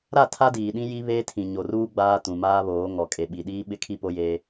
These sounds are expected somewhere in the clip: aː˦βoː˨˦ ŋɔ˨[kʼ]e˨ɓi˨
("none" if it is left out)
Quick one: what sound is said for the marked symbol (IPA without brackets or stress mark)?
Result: kʼ